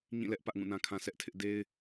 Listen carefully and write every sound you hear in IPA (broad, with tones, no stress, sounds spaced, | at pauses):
ɲ ĩ˦˨ l ɛ˦ ʔ p ä˦ ʔ ŋ ũ˦˨ n ã˦ kʰ ã˦ s ɛ˦ ʔ tʰ ɪ˦ ʔ d e˦ ɪ̯